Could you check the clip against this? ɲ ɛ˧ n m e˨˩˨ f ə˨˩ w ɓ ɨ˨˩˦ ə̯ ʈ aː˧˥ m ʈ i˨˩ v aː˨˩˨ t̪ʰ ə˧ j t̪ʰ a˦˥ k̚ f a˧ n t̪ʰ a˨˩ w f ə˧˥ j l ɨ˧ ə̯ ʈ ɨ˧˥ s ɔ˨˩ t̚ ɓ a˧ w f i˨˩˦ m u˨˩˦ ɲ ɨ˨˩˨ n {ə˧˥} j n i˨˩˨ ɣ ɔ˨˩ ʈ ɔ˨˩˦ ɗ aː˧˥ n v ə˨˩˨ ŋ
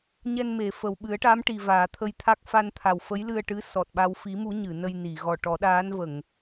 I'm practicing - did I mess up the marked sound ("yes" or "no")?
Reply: yes